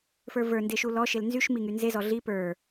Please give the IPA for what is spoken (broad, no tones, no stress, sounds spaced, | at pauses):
f ə˞ v ə˞ n d e ʃ u l ɔ ʃ e l n z y ʃ m i ŋ y n z e z ɔ ɮ i p ə˞